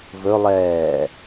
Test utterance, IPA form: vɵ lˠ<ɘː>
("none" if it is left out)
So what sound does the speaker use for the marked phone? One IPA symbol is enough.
ɛː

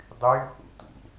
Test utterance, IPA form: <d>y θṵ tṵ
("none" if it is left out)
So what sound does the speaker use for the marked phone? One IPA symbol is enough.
dˤ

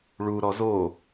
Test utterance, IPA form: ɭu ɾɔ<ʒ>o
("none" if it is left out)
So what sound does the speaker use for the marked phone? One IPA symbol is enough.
z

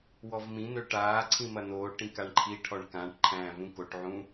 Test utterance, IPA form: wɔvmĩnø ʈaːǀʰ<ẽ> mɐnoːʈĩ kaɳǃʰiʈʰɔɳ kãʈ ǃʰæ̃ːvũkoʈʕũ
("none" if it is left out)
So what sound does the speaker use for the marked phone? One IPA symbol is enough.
ĩ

